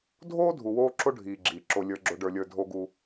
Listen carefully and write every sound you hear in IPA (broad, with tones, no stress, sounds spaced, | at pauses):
dʱ oː˦ dʱ u˨ w oː˦ ǁ o˦ ɖʱ iː˨ ɡ͡ǁ iː˨ ǁ o˨ lʲ ə˞˦ ɡ͡ǁ o˦ ɖ ə˞˦ lʲ ə˞˦ dʱ o˦ ɡ u˦